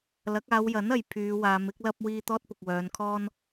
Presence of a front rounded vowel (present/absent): present